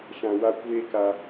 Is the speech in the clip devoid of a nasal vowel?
no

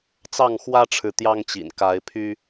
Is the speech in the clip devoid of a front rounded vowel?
no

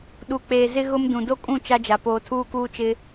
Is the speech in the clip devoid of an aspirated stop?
no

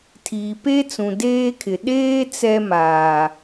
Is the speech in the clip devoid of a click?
yes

